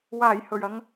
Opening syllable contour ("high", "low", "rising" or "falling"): low